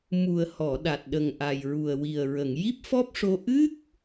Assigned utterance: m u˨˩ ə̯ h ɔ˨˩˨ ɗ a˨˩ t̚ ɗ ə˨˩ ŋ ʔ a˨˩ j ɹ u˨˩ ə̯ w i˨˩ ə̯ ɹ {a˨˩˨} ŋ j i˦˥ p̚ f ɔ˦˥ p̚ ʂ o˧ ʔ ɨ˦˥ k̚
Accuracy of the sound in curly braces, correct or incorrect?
incorrect